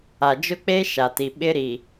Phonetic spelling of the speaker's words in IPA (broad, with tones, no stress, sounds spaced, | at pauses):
a˨ d͡ʒ ʊ˦ k͡p e˦ ʃ a˨ t i˨ ɓ ɪ˦ ɾ i˨